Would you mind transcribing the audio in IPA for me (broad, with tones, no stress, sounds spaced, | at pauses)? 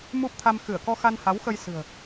m u˦˥ p̚ t̪ʰ a˧ m x ɨ˧˩ ə̯ k ɔ˧ x a˧ n h a˨˦ w x ə˧ j s ɨ̤˨˩ ə̯